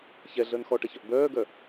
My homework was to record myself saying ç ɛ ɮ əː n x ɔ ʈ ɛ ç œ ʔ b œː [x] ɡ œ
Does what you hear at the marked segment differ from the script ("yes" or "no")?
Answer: yes